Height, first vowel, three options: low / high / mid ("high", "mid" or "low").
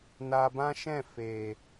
low